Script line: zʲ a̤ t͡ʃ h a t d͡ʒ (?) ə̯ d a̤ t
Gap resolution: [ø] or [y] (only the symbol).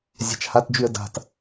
y